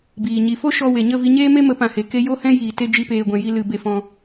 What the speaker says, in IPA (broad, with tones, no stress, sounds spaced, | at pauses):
b iː˨ ɲ i˧ f o˦ ʃ ɔ˧ w e˨ ɲ ə˦˨ v i˧ ɲ eː˦ m e˦ m ə˨˦ p ã˨ h e˨ k e˧ j o˦ h ɛ̃˦ j iː˧ t e˦ d͡ʒ i˧ p eː˨ ɡʷ ɛ̃˨ j i˧ l ɨ˧ b e˧ f ɔ̃˧